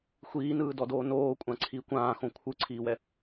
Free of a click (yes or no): no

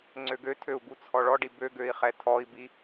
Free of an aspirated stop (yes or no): no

